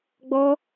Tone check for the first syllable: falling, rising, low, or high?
high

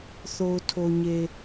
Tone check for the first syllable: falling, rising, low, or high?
low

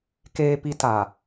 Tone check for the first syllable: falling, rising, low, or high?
high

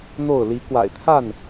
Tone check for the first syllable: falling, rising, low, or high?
falling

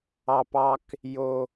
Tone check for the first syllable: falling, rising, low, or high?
low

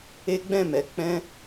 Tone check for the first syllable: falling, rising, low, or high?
high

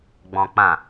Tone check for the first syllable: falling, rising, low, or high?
low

